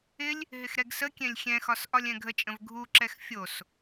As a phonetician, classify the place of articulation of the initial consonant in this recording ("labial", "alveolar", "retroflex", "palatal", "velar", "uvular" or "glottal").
alveolar